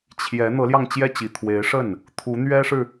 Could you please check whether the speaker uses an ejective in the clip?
no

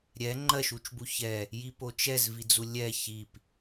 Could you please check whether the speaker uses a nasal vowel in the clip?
no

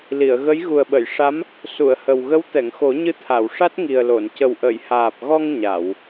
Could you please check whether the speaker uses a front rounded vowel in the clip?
no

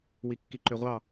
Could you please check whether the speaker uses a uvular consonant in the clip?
yes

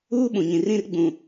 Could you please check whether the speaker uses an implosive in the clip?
yes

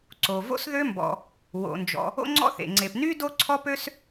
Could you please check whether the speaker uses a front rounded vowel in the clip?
yes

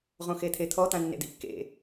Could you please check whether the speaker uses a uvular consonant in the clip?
yes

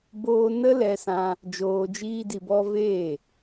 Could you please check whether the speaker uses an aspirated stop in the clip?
no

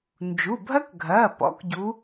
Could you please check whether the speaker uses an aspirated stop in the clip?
no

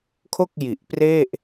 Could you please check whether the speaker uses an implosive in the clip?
no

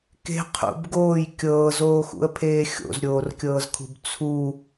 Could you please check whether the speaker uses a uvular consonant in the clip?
yes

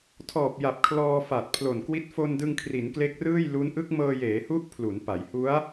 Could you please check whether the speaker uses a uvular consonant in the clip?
no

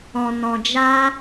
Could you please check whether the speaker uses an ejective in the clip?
no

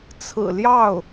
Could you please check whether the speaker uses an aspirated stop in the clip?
yes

